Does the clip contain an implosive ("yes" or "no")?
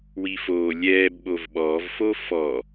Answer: yes